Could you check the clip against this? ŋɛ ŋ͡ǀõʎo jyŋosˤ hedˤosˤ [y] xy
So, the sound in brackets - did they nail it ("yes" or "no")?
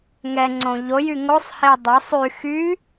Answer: yes